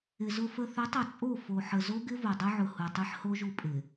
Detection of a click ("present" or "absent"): absent